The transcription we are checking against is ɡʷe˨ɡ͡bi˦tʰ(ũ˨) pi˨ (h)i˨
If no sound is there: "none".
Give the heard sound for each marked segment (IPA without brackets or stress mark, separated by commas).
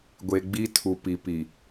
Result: u˨, p